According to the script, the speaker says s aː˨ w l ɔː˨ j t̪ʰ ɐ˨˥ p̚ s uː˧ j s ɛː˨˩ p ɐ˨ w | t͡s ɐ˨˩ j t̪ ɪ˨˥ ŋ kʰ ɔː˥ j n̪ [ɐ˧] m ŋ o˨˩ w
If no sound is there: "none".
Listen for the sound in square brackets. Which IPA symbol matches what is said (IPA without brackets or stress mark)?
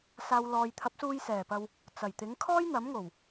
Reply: ɐ˨˥